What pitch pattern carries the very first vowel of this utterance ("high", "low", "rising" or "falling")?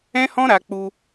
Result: high